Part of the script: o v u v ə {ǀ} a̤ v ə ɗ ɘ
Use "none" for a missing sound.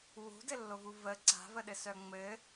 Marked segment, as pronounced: ǀ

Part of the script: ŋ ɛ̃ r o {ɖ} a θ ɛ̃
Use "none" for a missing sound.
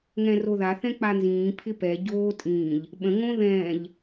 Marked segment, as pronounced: ð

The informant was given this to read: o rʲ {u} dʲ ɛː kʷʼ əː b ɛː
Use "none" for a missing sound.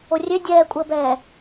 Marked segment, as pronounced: ø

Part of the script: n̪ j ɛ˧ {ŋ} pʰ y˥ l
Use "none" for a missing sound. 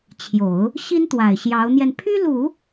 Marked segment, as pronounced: n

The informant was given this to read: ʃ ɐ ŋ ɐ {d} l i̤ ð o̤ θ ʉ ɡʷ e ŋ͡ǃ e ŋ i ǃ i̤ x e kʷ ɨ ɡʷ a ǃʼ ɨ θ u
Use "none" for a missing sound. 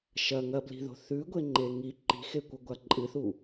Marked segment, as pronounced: b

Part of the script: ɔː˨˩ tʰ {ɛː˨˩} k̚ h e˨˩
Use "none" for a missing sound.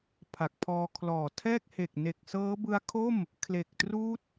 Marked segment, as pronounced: ɛː˥˩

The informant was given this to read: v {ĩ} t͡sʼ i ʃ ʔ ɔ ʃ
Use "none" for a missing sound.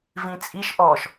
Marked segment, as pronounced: ĩ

